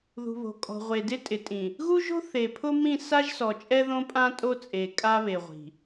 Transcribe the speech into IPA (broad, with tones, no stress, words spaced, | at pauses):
ðṳ˨βo̤˨kʼɔ̤˨ʁʷe˨ dɪ˦tʼɪ˨tʼĩ˨ | ɣu˦ʒo̤˦ θe˨pʰʊ˦mĩ˦˨ sa˦ʒsɔ˨ t͡ʃʼɛ˦ðõ˦pʼã˦ tʼo˦t͡sʼe˨ kʼa˦βe˨ʁʷi̤˨